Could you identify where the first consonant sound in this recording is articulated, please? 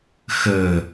velar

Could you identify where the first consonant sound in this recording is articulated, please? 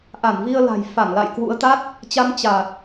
glottal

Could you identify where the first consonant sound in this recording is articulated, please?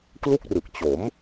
velar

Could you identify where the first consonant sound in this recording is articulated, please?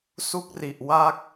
alveolar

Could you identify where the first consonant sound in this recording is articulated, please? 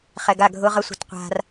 uvular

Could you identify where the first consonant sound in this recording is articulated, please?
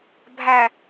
labial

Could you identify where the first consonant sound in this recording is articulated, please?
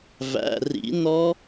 labial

